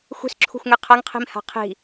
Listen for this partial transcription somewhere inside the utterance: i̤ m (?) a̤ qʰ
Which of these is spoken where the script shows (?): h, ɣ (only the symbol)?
h